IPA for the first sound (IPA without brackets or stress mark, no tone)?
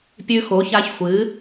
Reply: pʲ